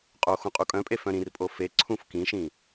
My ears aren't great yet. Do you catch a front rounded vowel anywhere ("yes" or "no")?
yes